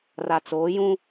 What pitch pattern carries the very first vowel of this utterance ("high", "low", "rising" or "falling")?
low